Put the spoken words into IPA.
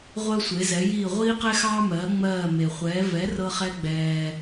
ʁʷ ɜ˥ sʷ e˩˥ z ɛ˩˥ j iː˥˩ ʁʷ iː˥ q ɛ˥ x ɑː˥ m ɜː˩˥ ŋ͡m ɜː˥˩ m e˩ χʷ ɛː˩˥ v ɛ˩˥ r ɤ˧ χ ɛ˧ ɡ͡b ɛː˩

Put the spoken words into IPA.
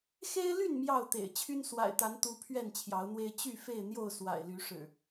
x e˦ ɪ̯ l y˥˨ n m j ɑ˥˨ ʊ̯ t̪ ḛ˨˩ ɪ̯ t͡ɕʰ y˦ n s w a̰˨˩ ɪ̯ t̪ a˨˦ n t̪ u˦ pʰ ɥ ɛ˥˨ n t͡ɕʰ j ɑ˨˦ ʊ̯ n̪ w e˦ ɪ̯ t͡ɕ y˥˨ f e˥˨ ɪ̯ n̪ j o˥˨ ʊ̯ s w a̰˨˩ ɪ̯ l y˨˦ ʂ ɻ̩˨˩

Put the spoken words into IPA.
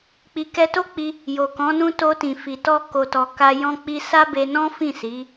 k͡p i˨ k ɛ˧ t o˦ k͡p i˧ | j o˨ k ɔ̃˨˦ n ũ˦ t o˧ t ĩ˨ f i˨ t ɔ˧ k o˨ t ɔ˨ k a˧ j ɔ̃˧ k͡p i˧ s a˦ b e˧ n ɔ̃˦ f ĩ˦˨ s i˨˦

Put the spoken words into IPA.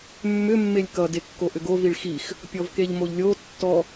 mː ʏ mː e lʲ k ʌ d e kː o ʔ ʏ ɡ o v i ɭ x i x | pʲ ɔ v k e ʎ m o ʎ lʲ o tː ɔ

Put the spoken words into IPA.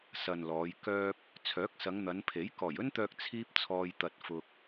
s ɐ˨ n l ɔː˨˧ j k œː˥ p̚ | t͡sʰ œː˨˥ k̚ s ɐ˨˧ ŋ n̪ ɐ˨˧ n pʰ e˨˥ j k ɔː˨˩ j ɵ˥ n t̪ œː˧ k̚ t͡sʰ iː˥ p̚ t͡sʰ ɔː˧ j t̪ ɐ˧ t̚ f ʊ˧ k̚

